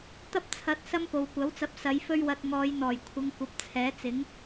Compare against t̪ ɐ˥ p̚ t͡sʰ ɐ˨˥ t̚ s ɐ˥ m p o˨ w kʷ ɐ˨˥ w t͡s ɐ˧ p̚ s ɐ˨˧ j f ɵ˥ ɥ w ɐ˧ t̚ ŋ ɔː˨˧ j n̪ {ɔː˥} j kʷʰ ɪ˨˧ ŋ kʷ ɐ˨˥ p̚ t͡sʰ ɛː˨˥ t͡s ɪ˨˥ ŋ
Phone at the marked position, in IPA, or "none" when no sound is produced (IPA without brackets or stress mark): ɔː˨˩